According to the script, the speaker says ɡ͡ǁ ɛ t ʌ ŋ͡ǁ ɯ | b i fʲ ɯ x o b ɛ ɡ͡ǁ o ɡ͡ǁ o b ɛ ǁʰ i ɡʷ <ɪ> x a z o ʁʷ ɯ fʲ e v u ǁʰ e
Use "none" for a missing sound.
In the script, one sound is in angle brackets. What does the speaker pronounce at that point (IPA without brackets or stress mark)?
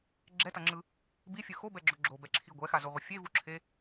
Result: ɛ